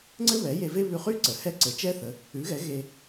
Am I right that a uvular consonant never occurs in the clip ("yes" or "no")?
no